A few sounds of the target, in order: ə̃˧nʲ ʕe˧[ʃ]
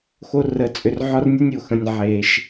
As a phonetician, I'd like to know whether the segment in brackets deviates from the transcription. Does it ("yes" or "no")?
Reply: no